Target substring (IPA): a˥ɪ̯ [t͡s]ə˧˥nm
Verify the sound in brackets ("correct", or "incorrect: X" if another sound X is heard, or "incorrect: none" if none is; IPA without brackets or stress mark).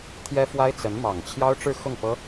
correct